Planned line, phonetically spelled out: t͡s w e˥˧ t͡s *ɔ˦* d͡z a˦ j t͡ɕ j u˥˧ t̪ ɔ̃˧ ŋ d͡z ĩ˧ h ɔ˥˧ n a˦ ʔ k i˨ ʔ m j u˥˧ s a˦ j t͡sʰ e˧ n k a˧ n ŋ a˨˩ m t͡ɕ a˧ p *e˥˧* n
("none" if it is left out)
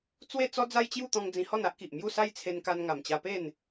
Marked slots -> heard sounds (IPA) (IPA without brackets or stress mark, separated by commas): ɔ˦, e˥˧